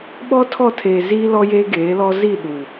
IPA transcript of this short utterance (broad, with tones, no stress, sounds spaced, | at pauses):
ɓ ɔ˦ tʰ ɔ˦˨ tʰ eː˨ z iː˦ l ɔ˦ j eː˦ ɡ eː˨˦ l ɔ˦ z i˦˨ ɗ uː˨